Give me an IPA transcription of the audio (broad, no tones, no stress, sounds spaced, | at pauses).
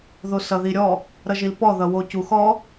ð o s ʌ ð i ɾʲ ɔ | ɾ ʌ ʒ i l p ɔ ð ʌ w o c u x ɔ